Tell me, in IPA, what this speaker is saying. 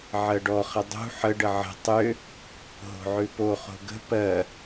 ʕɜɖɔχə dˤṳ ħəɖə ʕə̤ tˤʏ | ɦo̤ʕʉpo χo̤ɡə̤ pɜ

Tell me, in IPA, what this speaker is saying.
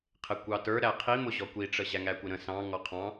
qʰɪkʷɑtə˞ ɾæqʰimʊ ʑɔkʷiʈ͡ʂə ʑæŋækʷɪɾə̃ sɑ̃ ŋɔqʰɑ̃

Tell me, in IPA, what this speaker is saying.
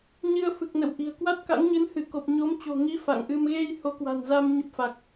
ɲɨ˧ə̯ fɨ˨˩k̚nə̰˧˨wʔi̤˨˩ə̯ kwa˦˥t̚ka̰˧˥ŋɲɨ˨˦n hɨ˧˩ko˨˩p̚ɲo˨˦mt͡ɕo̤˨˩ ŋi˨˦ fa̰˧˨ŋʔɨ˧m ɣe˧j ho˨˦kwa̤˨˩nza˧m ɲə˦˥p̚fa˨˩k̚

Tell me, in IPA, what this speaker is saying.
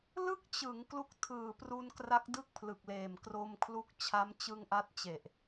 lɯ˥˩k̚t͡ɕɯ˩˦ŋ klu˦˥k̚tʰɯː˨˩pru˧nkra˦˥k̚ dɯ˥˩k̚pʰlɯ˨˩k̚leː˨˩m kro˧mkʰlu˦˥k̚ t͡ɕʰa˦˥mt͡ɕɯ˧ŋʔa˦˥t̚t͡ɕe˨˩ʔ

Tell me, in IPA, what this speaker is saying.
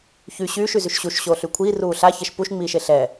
çy ɕyːʃyzyʃ ɕuʃɕoːɬy kʷʰiːruː ɬaçɛʃ puʃŋ͡miːʃe ɬɛ

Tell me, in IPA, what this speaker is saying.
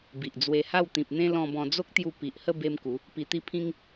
bi˨ʔd͡zwe˧ha˥˧w t̪ĩ˨p̚n̪ẽ˦ lɔ̃˧bɔ̃˧ d͡zo˦k̚t̪ju˧ pi˨ʔhə˥˧ be˦mku˨˦ | pi˧t̪i˦ pʰĩ˦ŋ

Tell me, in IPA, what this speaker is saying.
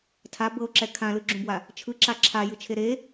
tʰa bɤo̯ǁɛ kʰãlɯɡ͡ǁũbwa | t͡ʃʰɯǁa ǁʰajɯt͡ʃʰe ɾe

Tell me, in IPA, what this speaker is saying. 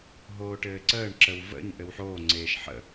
ɦoːʈɘːǀəːɳ ǁəwvə̰ɲ ʔɘwħoːŋ͡ǀeːʃ ħə̰

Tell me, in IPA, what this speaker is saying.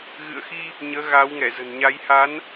ɣɨ̰˧˨ə̯xi˧ | ɲəː˨˦ɣaː˨˦wŋɛ˧˩ zə̤˨˩nɲa˨˦jha˨˦n

